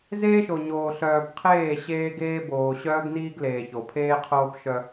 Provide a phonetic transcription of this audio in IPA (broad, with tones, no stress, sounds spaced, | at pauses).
z eː˦ ʃ o˨ ɲ oː˨ ɬ œː˨ b qʰ eː˦˨ ɕ eː˦ ɡ eː˦ b oː˨ ɕ œː˦ ɡ n iː˦ ɡ l eː˨ ç o˨ pʰ eː˦ qʰ oː˦ p ʃ œ˦